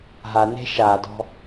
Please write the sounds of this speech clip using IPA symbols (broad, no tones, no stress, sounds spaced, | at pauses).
ɦ a n e̤ ʃ a d ɔ̤